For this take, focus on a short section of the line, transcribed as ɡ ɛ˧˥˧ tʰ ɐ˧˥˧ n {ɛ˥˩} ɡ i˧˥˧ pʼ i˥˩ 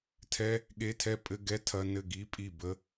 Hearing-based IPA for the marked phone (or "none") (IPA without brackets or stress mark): ɘ˥˩